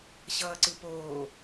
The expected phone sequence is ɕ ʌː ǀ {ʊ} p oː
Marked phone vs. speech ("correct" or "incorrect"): incorrect